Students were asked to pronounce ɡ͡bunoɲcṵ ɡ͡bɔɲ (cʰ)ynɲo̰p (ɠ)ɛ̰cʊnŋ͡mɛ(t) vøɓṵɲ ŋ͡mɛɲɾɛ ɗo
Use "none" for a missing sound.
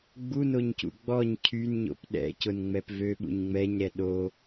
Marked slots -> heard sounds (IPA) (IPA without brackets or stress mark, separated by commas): cʰ, ɗ, p